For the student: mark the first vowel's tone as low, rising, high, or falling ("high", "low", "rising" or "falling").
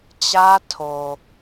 high